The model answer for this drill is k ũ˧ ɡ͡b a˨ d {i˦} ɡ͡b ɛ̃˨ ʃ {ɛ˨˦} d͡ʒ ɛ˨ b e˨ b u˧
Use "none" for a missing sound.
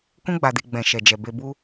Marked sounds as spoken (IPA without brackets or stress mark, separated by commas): i˨, ɛ˨